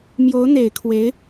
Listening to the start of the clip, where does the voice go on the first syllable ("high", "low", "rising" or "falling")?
rising